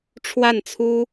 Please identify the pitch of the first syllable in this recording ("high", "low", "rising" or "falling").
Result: falling